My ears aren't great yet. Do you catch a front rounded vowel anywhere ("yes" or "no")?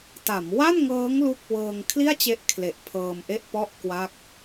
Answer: no